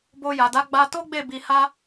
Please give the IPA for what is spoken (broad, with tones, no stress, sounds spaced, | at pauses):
b o˧ j a˨ d a˨˦ ɡ͡b a˧ t o˦ ɡ͡b e˦˨ b i˧ h a˦